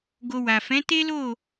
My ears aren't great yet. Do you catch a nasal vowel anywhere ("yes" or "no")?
yes